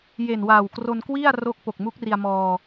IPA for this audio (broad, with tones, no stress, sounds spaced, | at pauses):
j e˨˩ n w aː˨˩ w k r o˧ n k w i˥˩ a̯ r o˦˥ k̚ p o˨˩ k̚ m u˦˥ k̚ r i˧ a̯ m ɔː˧